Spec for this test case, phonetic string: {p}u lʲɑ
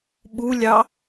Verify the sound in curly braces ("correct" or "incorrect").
incorrect